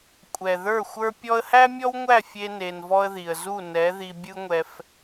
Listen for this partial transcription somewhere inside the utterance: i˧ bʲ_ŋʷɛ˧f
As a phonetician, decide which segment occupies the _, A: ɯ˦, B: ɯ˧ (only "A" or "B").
A